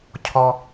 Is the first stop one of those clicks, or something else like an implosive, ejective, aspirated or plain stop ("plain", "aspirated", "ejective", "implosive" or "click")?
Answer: aspirated